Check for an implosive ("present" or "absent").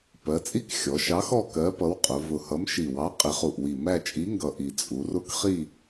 absent